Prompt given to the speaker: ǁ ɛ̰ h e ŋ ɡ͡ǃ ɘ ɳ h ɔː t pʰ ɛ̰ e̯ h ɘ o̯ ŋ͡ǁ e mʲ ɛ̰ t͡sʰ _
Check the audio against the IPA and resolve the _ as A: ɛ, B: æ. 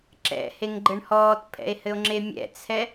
A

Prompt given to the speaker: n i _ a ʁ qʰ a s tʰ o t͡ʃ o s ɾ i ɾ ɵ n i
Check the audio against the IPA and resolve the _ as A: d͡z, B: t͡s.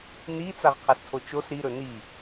B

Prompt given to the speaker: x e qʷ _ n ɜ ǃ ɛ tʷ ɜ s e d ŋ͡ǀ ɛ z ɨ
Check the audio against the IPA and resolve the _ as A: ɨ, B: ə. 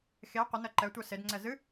B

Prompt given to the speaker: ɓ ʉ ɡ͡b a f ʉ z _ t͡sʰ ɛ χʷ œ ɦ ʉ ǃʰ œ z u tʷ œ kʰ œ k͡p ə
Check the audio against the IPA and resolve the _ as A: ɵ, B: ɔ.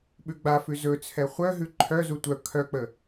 A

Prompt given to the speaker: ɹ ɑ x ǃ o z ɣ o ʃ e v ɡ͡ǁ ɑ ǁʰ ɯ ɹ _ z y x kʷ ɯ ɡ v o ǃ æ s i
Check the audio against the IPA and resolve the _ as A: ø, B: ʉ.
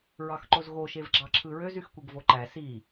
A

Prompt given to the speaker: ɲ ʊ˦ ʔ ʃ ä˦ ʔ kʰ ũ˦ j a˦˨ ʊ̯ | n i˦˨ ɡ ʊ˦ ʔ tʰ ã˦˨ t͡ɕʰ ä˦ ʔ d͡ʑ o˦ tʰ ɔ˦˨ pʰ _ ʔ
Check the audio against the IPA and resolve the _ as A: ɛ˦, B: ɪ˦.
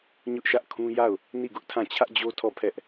A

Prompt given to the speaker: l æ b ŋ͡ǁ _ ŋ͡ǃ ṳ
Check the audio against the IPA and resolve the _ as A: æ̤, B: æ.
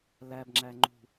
B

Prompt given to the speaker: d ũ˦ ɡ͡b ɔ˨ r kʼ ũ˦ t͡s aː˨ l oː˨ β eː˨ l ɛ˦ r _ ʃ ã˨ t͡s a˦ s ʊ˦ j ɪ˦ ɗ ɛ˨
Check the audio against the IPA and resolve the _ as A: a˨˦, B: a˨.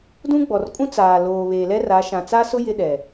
A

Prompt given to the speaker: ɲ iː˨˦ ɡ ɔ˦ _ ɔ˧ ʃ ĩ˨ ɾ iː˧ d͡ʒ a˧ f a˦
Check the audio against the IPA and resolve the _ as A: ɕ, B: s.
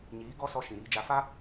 B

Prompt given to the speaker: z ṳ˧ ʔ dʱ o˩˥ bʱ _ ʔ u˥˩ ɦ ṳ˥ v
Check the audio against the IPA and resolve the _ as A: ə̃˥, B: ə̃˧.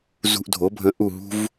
B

